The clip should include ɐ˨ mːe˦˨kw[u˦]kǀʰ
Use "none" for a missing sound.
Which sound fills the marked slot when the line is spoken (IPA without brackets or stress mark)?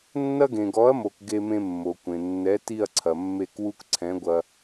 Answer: u˦